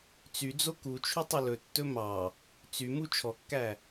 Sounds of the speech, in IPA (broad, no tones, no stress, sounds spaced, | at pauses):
t͡s y d͡z o k u t͡ʃʰ y tˤ ɵ l ɵ tː ɵ m ɑ | t͡s y m u t͡ʃʰ ɔ kː æ